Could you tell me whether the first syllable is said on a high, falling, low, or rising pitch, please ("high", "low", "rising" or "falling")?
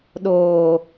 low